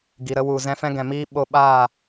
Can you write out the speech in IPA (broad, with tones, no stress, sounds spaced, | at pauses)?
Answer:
ɡ i˨ ɾ ə˦ w u˨ z ɛ̃˧ f ɛ̃˦ ɡ ɛ̃˨ m iː˦ ɓ o˧ ɓ aː˦˨